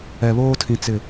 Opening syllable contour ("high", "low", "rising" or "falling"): low